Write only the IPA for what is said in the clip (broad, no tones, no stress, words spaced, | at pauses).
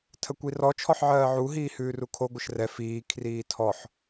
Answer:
tʰəkʷirɔ t͡ʃʰɔħʕɜːʕu ɦiːhʉːrukʰo ɡʷəʃrɛ fiː kʰriːtʰɔħ